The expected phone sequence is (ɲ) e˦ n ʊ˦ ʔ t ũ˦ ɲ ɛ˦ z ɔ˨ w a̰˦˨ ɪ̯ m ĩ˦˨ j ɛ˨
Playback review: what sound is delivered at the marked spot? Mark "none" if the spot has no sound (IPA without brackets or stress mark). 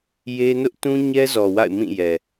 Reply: j